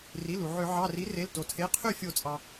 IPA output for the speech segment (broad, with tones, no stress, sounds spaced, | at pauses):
r i˩˧˩ l u˩ ʕ ø˧˩˧ ʕ ɑ˩˧˩ r i˩˥ r e˩˧˩ l t o˩ tʰ e˩˧˩ qʰ y˥˩ fʲ o˧˩˧ t͡sʼ ɑ˩